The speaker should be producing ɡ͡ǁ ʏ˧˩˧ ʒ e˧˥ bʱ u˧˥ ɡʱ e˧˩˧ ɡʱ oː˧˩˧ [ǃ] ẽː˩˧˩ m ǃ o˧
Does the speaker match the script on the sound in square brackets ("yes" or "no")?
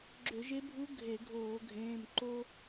no